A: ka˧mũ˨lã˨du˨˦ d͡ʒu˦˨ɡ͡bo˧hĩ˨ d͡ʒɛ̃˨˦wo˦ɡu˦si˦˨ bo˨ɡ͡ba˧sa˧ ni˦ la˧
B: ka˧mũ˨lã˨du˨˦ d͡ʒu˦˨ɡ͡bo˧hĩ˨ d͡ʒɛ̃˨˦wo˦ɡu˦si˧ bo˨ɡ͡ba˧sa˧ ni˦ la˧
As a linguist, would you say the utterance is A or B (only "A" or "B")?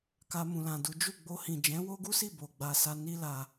A